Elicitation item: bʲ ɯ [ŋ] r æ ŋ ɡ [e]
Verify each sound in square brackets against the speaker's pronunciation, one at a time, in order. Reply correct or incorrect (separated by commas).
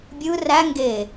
incorrect, correct